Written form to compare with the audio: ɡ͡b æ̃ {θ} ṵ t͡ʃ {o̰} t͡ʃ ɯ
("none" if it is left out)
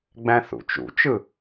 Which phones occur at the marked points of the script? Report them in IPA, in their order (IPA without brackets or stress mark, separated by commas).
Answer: θ, ṵ